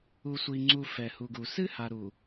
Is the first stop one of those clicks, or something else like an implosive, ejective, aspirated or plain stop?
click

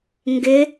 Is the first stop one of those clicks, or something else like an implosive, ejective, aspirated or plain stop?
plain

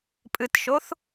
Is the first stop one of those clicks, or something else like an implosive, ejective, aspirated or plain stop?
ejective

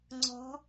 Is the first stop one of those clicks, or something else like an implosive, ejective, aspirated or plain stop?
click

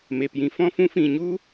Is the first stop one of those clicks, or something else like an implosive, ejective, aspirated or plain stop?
plain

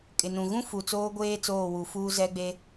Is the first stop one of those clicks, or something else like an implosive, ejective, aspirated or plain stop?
ejective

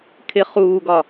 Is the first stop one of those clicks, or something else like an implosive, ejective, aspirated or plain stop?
aspirated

